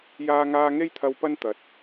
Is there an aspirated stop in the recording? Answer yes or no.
yes